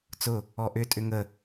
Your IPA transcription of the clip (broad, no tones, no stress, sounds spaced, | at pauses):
t͡s ʊ | ɔ ʔ ʏ tʼ ʏ ŋ ə